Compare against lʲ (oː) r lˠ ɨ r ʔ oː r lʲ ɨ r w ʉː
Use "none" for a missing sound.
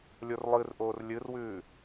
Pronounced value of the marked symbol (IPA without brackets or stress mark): o